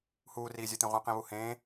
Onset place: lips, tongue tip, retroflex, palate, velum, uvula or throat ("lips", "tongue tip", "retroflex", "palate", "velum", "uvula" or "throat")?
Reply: throat